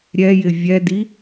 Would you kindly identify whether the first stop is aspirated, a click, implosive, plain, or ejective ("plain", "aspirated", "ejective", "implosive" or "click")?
plain